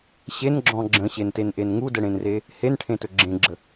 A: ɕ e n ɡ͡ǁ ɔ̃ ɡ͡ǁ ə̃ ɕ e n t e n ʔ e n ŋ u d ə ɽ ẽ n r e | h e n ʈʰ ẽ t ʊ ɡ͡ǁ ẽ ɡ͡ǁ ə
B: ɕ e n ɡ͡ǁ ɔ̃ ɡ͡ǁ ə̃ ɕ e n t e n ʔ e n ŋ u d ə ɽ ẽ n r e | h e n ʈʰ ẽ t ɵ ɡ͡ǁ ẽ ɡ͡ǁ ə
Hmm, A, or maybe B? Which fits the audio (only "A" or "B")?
B